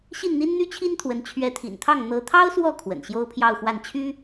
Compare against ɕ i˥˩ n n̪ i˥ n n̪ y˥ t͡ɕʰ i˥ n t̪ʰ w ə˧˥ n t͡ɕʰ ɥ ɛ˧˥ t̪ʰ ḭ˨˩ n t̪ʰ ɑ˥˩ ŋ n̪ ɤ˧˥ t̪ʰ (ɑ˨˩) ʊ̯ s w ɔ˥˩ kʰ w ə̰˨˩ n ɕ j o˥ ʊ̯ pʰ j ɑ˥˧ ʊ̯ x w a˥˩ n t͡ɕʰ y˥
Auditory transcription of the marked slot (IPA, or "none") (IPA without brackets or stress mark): ɑ˥